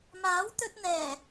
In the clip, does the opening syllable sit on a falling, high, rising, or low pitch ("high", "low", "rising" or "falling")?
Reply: rising